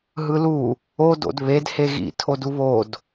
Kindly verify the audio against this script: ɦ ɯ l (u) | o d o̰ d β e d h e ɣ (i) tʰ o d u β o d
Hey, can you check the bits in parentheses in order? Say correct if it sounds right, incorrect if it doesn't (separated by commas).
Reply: correct, incorrect